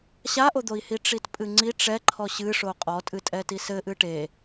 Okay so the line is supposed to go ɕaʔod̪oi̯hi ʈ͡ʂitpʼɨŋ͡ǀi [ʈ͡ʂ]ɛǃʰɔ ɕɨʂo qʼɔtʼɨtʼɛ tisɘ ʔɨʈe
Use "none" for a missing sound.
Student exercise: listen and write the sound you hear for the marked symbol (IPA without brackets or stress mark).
ʈ͡ʂ